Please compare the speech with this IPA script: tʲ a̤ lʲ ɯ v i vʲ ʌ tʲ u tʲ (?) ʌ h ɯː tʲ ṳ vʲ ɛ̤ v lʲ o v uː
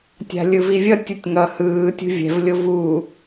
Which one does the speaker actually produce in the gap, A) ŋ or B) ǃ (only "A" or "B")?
A